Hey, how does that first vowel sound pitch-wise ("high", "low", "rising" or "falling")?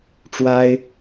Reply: high